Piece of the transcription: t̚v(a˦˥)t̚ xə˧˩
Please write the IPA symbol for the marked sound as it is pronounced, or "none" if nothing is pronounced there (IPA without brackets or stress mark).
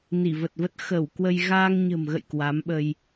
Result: ə˦˥